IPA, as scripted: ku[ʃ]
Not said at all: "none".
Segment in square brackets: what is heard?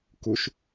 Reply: ʃ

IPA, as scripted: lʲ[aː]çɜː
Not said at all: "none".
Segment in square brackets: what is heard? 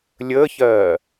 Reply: əː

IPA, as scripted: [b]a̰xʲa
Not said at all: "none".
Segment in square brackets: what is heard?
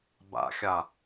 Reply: b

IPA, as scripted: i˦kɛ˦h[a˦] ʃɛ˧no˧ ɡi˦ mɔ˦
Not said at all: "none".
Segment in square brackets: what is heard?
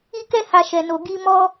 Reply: a˧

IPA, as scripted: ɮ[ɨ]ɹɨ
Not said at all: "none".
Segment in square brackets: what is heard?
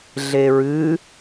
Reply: e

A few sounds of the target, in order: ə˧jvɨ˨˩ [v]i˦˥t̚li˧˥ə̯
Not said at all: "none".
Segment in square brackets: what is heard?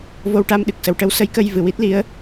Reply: w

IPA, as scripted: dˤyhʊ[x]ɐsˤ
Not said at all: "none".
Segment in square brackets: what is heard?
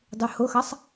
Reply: x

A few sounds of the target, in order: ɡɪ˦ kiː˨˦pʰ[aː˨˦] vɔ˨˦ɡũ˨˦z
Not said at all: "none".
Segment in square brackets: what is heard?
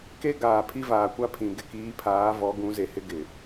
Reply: aː˨˦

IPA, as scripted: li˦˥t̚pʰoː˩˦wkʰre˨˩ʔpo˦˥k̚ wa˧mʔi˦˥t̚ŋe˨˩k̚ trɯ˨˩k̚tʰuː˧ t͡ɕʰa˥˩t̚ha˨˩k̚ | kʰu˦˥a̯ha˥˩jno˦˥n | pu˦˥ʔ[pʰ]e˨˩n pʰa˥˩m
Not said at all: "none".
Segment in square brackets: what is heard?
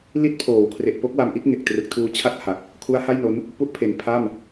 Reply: pʰ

